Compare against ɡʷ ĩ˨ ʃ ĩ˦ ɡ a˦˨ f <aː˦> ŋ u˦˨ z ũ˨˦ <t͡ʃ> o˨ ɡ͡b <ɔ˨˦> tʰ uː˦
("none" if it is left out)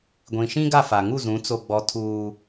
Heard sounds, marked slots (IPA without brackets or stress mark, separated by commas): aː˨, t͡s, ɔ˨˦